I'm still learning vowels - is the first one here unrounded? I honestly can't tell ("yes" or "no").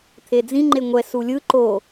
yes